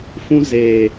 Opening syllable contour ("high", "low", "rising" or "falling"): high